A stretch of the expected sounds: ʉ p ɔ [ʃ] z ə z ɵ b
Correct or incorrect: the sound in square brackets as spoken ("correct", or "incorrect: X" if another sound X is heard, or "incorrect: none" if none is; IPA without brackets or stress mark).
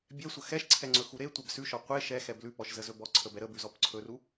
correct